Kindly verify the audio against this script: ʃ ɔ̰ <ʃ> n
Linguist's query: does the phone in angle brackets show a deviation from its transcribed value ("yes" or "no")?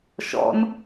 yes